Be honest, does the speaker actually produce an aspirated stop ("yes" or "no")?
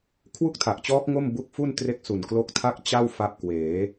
yes